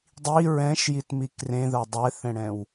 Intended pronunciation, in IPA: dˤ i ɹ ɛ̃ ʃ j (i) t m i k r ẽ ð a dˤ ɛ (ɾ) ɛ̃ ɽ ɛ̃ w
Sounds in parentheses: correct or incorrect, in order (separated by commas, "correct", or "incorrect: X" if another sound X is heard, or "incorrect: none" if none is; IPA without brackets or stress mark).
correct, incorrect: θ